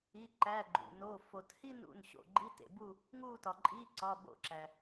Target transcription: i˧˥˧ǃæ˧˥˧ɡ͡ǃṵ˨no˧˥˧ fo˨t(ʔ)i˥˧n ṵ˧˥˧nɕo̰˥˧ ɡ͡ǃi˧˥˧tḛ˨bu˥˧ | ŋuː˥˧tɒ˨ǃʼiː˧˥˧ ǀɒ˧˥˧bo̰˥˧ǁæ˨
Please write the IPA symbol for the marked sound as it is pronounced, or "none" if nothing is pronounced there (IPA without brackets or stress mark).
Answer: h